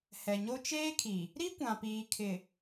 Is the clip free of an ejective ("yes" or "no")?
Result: yes